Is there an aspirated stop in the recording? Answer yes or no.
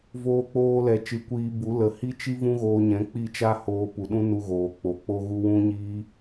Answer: no